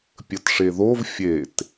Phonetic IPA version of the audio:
pʲ ə t ʂ e ð o v fʲ e t

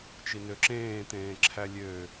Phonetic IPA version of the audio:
t͡ʃ i n ø ǁ ẽː t̪ ẽː ǁʰ æ lʲ ø

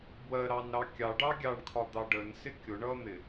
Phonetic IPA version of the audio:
b w ɜ ɾ ɑ n ɾ ɑ kʲ ɑ ɖ ɑ ɡʲ ɑ ɳ kʰ ɒ d̪ ɑ ɖ ə n s ɪ kʲ ʊ ɳ ʌ n̪ ɪ

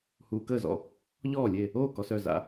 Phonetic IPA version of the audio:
h uː˨ k əː˥˩ z ɔ̰˥˩ | ʎ ɔː˥˩ lʲ e˥˩ | oː˥˩ k ɔ˨ s œ˥˩ z a̰˨

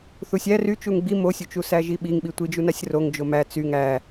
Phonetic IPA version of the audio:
θ u sʲ æ r y t͡ʃ u ŋ ɡ͡b i m o sʲ u t͡ʃ u s æ ʒ i ɓ i ŋ ɓ i tʷ i d͡ʒ u n a sʲ r o ŋ d͡ʒ o m æ t͡s y ŋ æ

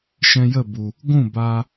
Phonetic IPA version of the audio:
ʃ ɛ̃˧ j ə˦˨ b u˨ | ɡʷ ũ˦˨ b aː˧

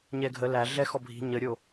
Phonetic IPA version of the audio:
ɲ ɛ ɡʱ ə l æ ɮ ɛ x ɔ bʱ i̤ ɲ ə ɾʲ o

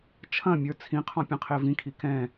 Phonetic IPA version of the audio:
t͡ʃʰ ɐ̃ mʲ ə˞ t͡sʰ ĩ qʰ ɔ̃ pʲ ɐ̃ qʰ e v ĩ kʰ i k ɛ̃

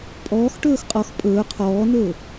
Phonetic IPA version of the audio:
pʼ ɔː x ʈ ɵː x qʼ ɔ x pʼ ɵː qʰ ɔː n ɵː

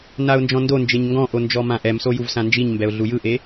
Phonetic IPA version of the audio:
n a ʊ̯ n d͡ʒ ɔ̃ n d o n d͡ʒ e ɲ ŋ ɡ ɔ̃ ʔ o n d͡ʒ ɔ m ã ʔ ɛ m s o j u v s ã n d͡ʒ i ɲ m b ɛ ʊ̯ ɮ u j ɯ ʔ e

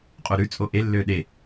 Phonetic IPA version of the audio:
qʼ o ɾ ʉ t͡sʼ o ʔ e lː ø ɗ e

